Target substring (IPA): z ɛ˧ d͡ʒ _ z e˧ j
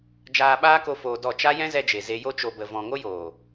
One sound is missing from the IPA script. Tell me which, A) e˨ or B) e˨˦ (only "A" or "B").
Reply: A